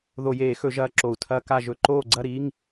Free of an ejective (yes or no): yes